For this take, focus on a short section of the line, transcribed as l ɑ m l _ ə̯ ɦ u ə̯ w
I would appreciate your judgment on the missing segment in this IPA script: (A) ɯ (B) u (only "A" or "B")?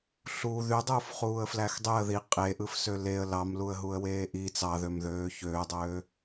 B